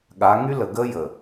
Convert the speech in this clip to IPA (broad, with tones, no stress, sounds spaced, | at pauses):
ɠ a˨˦ ŋ y˦ l ə˨ ɡ ə˦ j ə˨